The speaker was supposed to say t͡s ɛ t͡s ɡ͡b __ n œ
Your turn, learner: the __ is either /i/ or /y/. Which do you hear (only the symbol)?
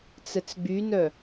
y